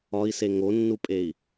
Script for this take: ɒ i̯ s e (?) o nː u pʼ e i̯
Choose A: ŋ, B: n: A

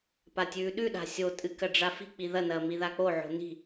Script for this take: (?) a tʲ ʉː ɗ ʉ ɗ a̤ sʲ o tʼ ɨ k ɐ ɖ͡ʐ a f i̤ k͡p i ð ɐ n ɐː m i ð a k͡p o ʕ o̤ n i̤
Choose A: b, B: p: B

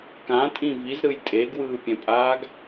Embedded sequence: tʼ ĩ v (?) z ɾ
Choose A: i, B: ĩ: A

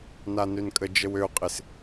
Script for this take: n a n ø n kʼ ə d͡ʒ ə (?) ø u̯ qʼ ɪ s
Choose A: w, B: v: A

